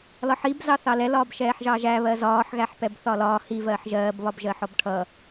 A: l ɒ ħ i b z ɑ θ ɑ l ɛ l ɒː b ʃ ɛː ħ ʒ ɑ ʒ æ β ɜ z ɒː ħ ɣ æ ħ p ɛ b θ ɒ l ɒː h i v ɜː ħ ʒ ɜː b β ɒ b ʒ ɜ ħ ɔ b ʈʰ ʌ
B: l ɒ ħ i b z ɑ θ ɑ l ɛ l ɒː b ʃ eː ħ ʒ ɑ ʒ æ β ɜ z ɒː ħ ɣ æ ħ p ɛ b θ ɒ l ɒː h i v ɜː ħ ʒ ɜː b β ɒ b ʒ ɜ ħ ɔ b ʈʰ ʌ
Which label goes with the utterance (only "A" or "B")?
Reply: A